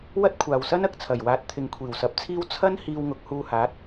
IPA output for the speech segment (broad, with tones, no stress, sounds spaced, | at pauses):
w ɐ˥ t̚ kʷʰ aː˨ w s ɐ˥ n ɐ˨˥ k̚ t͡sʰ ɐ˨˩ j w aː˨˥ t̚ t̪ʰ ɪ˨˧ ŋ kʷʰ iː˨˩ w s ɐ˨˥ p̚ t͡sʰ iː˥ w t͡sʰ ɐ˥ n h iː˧ w ŋ ʊ˨˥ k̚ h uː˧ h aː˨˥ t̚